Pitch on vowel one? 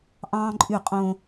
high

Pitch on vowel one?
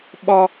high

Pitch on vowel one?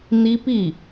high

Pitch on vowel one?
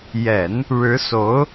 low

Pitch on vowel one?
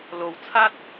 low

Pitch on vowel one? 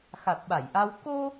low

